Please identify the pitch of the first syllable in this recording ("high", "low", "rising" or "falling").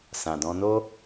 low